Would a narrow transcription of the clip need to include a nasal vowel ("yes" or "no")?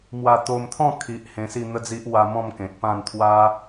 yes